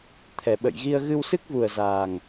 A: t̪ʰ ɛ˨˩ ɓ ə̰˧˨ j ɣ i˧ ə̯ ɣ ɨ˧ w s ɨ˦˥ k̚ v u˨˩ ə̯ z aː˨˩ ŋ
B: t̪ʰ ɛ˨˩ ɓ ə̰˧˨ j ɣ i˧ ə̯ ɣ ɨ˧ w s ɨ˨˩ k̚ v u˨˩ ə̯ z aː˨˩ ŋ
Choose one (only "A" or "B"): A